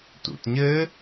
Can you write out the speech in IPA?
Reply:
t ṵ t ɲ ɘ

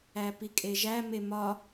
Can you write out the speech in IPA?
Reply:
æ p i kʼ e ʒ æ m e m ɒ

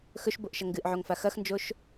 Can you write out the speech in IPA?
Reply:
x ɵ ʃ b o ʔ ʃ ɐ ŋ ɡ ɨ ʔ ʕ o ŋ f a x ɐ x n d͡ʒ o ʃ

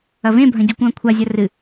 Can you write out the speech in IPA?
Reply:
ɐ v ẽ bʱ ɐ̃ ɟ u kʷ ɐ̃ː kʷʰ a zʲ ɐ r ɨ

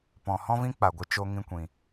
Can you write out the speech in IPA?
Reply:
p ɔ̃˨ h ɔ̃˦ v ĩ˦ k͡p a˨ ɡʷ ɨ˧ t͡ʃ o˧ ŋ ĩ˧ kʷ ĩ˨

